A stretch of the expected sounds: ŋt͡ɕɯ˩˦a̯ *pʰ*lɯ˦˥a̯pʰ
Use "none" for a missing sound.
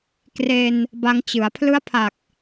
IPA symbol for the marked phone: pʰ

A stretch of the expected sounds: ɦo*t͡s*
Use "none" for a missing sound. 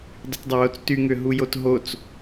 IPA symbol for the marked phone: t͡s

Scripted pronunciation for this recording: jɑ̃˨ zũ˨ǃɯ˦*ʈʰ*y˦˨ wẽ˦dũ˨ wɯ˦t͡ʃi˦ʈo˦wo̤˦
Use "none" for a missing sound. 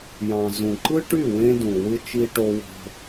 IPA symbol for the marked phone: ʈ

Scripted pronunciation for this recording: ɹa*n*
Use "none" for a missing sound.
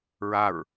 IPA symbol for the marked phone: ɹ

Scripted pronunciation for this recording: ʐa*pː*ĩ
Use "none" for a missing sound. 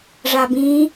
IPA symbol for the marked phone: b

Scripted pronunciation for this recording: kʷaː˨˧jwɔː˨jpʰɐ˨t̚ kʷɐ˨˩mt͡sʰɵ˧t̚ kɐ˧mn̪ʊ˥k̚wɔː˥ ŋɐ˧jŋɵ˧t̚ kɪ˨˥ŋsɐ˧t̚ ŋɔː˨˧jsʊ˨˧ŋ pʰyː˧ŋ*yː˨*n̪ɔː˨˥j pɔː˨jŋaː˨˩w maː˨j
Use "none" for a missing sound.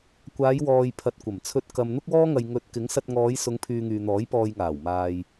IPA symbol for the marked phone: yː˨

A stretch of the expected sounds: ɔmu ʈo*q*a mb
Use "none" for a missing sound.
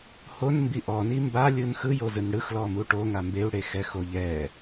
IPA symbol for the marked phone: ŋ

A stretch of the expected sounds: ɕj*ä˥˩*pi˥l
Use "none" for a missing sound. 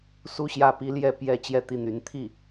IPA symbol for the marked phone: ä˥˩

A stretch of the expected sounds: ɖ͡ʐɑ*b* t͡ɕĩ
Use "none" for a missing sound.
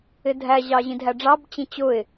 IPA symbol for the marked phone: b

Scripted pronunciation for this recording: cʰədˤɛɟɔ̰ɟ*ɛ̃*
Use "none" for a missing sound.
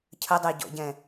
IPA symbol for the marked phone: ɛ̃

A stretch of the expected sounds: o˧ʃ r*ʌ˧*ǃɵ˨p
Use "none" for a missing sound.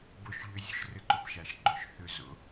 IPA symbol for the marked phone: ə˧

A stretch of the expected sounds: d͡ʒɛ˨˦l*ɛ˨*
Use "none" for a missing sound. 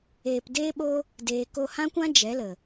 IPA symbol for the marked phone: ə˨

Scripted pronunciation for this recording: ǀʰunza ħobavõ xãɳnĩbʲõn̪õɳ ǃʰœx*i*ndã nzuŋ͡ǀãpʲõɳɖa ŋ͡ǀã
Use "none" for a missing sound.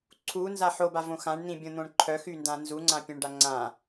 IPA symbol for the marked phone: y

